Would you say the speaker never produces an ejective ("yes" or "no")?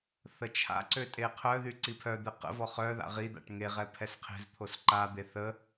no